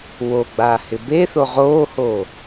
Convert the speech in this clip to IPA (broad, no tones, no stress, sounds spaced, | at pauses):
w o ɡ͡b aː h ɪ b e θ o ʁ oː h oː